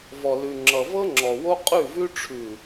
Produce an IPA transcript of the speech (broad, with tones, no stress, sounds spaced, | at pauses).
v ɔ˨ l ʉ˨ ŋ͡ǁ ʌ˨ v ɤ˦ ŋ͡ǁ ɔ˨ w o˦ qʼ ʉ˦˨ v ʉ˦ ʈ͡ʂʰ ʉ˨